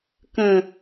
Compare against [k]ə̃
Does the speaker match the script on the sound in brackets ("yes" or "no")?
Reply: yes